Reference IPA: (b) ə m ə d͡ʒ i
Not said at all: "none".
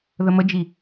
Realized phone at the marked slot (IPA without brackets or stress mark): ð